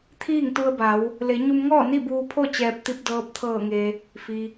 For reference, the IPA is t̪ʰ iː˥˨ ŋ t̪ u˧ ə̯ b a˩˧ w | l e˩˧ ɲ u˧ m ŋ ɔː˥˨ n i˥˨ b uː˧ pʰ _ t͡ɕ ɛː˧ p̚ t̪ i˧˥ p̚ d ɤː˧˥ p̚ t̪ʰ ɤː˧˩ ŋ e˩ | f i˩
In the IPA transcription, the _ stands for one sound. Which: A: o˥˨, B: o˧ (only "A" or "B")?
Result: A